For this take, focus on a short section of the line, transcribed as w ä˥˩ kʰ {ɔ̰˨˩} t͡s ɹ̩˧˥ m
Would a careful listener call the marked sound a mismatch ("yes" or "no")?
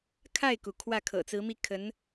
yes